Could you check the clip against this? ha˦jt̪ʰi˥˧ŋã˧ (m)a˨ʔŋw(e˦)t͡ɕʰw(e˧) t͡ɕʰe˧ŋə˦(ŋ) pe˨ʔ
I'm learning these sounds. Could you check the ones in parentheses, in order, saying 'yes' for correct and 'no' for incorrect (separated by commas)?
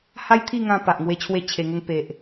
no, yes, no, yes